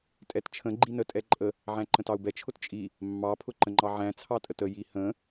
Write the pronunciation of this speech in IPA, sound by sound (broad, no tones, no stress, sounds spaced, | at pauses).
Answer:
tʼ ɛ t t͡ʃʰ ə̃ ɡ͡ǃ i n ə tʼ ɛ ǃʼ ə | ʕ æ̃ ǃ ə̃ t ɑ u̯ b ɛ t͡ʃʰ ʊ t t͡ʃʼ i | mː ɑ pʰ ʊ ǃ ə̃ ŋ͡ǃ ɑ ʕ æ̃ t͡sʰ ɑ tʼ ə t ə j i h ə̃